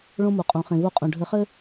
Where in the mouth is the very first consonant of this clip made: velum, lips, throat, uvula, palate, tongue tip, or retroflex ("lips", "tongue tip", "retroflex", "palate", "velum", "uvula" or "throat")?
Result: retroflex